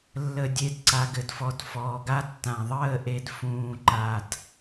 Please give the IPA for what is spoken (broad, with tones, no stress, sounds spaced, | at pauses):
lː ə˨ dʲ e˨ d ǀ a˨ ɡ ɘ˨ d f ɔ˨ d f ɔː˨ ɡ a˦ tː ã˨ ðˤ əː˦˨ ʔ e˨ d f ũː˨ ǃ a˨ d